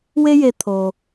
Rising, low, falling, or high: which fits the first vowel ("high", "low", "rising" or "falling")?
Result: high